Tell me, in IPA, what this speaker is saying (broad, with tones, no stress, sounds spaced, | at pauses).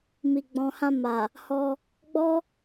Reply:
m i˨ ɡ͡b ɔ̃˨ h ã˧ m a˨ | h ɔ˧ | ɡ͡b ɔ˦